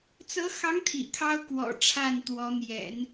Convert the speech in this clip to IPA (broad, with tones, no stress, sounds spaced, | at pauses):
t͡s ɤ˧˥ x ɑ˧˥ ŋ t̪ʰ ḭ˨˩ kʰ ɑ˥ ʊ̯ k w ɔ̰˨˩ ʈ͡ʂʰ a˥˩ n t̪ w ɔ˧˥ n̪ j ɛ̰˨˩˦ n